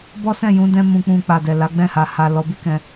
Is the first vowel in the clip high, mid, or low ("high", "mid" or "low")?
mid